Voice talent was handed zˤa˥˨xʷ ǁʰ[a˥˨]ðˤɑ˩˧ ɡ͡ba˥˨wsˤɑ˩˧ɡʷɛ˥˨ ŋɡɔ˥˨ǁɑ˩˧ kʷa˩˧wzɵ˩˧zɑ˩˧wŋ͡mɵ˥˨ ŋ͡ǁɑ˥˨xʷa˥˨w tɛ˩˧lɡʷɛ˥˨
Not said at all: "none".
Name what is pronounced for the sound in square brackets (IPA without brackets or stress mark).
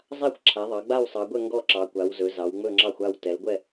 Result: a˩˧